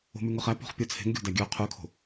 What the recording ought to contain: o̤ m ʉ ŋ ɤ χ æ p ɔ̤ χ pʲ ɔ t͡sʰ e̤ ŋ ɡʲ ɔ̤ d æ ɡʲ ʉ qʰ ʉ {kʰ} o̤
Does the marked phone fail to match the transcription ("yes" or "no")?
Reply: no